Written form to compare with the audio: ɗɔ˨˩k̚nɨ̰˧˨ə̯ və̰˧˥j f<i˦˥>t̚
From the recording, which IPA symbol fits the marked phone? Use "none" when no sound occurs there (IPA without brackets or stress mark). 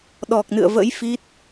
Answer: i˦˥